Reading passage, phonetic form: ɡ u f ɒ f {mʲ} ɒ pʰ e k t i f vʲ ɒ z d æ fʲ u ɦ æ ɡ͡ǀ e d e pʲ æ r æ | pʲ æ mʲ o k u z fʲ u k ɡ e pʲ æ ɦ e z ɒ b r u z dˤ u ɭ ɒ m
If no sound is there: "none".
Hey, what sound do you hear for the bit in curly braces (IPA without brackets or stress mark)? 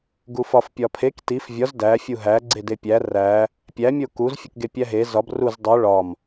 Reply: pʲ